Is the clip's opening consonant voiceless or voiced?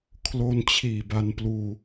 voiceless